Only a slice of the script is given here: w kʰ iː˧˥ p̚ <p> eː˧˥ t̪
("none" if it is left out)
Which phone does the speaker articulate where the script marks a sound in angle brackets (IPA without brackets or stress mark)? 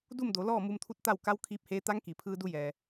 h